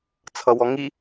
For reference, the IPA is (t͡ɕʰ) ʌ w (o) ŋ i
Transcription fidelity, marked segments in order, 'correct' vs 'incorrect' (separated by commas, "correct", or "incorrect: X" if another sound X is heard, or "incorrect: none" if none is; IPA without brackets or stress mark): incorrect: t͡sʰ, incorrect: ɔ